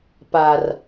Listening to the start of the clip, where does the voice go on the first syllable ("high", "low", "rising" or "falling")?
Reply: low